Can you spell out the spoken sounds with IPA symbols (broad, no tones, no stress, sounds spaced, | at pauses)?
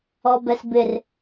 ɔ b ɛ s b ɪ r